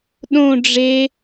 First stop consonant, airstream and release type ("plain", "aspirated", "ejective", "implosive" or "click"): implosive